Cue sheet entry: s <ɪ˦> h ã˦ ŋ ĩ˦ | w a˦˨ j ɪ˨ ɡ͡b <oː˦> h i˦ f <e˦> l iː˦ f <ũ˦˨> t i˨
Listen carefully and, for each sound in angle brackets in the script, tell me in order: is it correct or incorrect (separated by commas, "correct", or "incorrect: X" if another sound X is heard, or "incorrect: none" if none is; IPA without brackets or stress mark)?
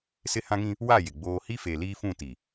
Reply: correct, correct, incorrect: e˨, correct